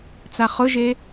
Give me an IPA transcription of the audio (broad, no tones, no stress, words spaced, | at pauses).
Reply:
t͡saχʊʒe